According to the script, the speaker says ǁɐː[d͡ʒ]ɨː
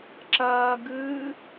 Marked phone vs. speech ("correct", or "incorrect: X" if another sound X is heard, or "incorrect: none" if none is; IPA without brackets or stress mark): incorrect: ɡ